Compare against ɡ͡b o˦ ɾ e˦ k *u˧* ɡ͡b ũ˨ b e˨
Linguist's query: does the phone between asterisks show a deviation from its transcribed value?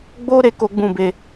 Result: yes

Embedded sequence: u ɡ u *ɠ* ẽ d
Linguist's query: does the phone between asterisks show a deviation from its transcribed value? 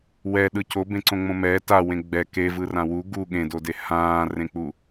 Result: no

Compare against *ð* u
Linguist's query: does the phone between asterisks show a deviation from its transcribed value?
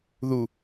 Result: no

